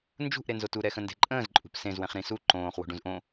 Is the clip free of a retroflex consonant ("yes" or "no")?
no